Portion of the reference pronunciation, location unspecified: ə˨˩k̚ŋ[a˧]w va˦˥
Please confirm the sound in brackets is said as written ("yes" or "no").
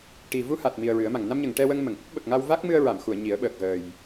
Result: yes